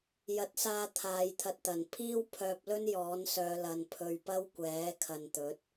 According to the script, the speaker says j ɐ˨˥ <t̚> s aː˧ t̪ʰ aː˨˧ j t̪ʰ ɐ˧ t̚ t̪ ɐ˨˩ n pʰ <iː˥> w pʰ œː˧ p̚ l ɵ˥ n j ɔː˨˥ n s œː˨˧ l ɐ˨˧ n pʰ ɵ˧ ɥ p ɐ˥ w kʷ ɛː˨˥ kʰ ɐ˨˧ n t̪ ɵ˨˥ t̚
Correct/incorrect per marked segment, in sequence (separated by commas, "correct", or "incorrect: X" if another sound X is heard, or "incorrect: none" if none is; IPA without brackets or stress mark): correct, correct